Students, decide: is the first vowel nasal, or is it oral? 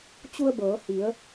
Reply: oral